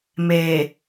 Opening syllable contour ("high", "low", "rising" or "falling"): low